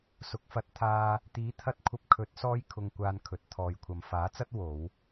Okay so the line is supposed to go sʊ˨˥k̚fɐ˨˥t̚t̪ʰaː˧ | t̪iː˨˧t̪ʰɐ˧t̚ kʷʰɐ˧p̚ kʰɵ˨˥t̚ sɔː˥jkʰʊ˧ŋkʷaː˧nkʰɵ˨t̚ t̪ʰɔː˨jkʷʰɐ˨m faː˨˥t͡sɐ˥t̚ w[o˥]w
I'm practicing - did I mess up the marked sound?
yes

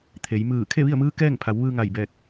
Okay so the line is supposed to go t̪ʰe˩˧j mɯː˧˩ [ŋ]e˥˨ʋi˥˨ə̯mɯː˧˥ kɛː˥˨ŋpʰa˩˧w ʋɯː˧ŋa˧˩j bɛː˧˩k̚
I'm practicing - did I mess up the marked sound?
yes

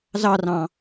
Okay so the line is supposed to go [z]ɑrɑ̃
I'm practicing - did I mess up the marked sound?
no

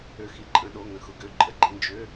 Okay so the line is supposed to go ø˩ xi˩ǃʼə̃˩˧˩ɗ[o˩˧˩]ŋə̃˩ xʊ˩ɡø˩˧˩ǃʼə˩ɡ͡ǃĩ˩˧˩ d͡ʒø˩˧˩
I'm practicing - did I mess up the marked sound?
no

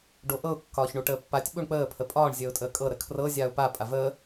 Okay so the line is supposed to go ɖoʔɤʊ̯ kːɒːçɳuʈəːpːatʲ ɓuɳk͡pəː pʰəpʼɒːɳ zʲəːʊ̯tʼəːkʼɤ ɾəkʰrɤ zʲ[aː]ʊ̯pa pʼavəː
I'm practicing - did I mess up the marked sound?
no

